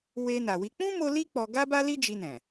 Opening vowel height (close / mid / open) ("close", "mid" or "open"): mid